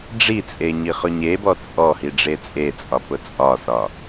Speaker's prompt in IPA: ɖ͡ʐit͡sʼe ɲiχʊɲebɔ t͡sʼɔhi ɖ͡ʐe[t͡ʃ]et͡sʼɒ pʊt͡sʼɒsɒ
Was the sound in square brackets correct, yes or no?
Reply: no